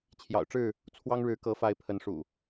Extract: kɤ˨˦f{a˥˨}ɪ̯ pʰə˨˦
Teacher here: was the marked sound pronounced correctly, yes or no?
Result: no